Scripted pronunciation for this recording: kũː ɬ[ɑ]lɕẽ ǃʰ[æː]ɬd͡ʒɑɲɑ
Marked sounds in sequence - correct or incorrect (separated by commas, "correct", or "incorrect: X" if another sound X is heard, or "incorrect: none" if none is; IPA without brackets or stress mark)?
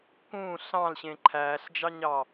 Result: incorrect: ɑ̃, correct